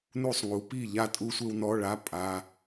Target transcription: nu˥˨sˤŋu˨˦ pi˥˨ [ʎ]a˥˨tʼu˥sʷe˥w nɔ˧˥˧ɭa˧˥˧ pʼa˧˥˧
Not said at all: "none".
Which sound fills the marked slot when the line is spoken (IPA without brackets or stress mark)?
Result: ʎ